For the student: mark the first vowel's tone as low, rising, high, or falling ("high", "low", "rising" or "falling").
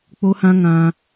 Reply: high